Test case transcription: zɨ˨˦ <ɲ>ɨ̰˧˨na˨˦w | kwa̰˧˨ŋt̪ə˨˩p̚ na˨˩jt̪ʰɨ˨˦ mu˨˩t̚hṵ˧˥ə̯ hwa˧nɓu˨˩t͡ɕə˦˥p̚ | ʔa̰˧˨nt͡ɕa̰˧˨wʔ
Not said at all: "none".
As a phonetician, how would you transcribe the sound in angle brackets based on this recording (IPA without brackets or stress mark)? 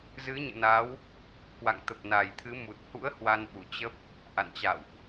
ɲ